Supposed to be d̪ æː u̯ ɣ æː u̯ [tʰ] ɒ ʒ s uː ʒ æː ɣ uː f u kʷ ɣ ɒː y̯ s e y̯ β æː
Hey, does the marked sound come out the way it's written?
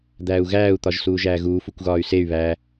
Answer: no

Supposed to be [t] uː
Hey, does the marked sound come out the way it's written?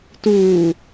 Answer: yes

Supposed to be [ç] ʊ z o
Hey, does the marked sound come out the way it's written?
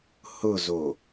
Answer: no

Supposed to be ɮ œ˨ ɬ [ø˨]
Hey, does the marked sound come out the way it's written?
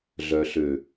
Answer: yes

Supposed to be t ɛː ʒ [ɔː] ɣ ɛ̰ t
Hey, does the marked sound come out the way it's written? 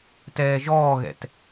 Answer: yes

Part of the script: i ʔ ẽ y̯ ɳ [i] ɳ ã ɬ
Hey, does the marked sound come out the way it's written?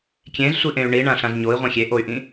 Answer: yes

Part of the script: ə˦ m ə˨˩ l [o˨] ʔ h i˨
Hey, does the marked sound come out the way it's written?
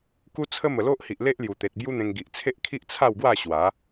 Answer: no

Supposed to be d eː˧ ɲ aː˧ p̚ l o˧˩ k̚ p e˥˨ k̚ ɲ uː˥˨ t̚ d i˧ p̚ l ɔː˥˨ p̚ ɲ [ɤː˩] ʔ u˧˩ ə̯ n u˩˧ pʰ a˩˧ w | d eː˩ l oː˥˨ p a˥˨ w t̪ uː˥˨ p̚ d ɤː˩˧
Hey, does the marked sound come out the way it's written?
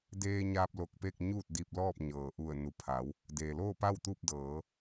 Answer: yes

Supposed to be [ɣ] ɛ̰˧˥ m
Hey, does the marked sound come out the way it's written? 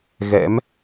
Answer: yes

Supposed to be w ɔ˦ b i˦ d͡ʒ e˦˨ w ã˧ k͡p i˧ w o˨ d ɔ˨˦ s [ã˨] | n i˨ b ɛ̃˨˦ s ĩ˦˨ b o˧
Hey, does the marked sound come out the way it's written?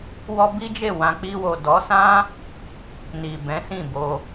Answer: no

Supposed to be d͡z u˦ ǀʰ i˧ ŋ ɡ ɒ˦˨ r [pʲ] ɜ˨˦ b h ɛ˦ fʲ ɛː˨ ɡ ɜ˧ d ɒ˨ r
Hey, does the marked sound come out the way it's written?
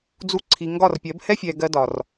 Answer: yes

